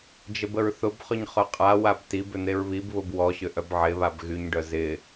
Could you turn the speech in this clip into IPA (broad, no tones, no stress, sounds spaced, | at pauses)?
d͡ʒ ə b ə ɹ θ ʊ b χ ʏ ɲ χ œ qʼ a w a b t i b ʏ n̪ e ɹ β i b β ʊ b w ɔ ɕ ʏ ʔ œ b ʕ ɪ β a b ɣ y ɲ ɖ œ z ɪ